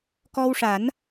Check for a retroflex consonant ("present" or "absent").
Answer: present